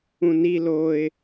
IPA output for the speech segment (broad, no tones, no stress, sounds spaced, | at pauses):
ũ n i l o ɪ̯